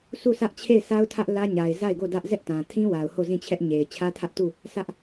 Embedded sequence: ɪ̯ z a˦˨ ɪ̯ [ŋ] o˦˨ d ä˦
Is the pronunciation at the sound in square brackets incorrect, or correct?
incorrect